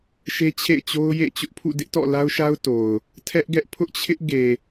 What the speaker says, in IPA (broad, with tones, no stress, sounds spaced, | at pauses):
ʃ e˦ t͡ɕʰ ḛ˦˨ ɪ̯ t͡ɕ o˦ ʊ̯ j ḛ˦˨ t͡ɕ ʊ˦ ʔ pʰ ṵ˦˨ d ɪ˦ ʔ t ɔ̰˦˨ l a˦ ʊ̯ ʃ a˦ ʊ̯ t o˨ ʊ̯ | tʰ ɛ˦ ʔ ɡ ɛ˦ ʔ pʰ ʊ˦ ʔ t͡ɕʰ ɪ˦ ʔ ɡ e˨